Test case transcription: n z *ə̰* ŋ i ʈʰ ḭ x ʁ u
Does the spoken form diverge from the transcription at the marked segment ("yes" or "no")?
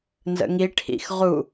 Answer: no